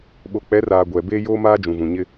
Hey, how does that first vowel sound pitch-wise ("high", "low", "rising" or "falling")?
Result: low